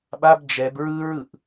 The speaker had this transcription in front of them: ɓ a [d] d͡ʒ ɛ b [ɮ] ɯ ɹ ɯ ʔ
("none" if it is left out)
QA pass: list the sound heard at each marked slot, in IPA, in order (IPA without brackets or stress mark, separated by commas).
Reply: b, ɹ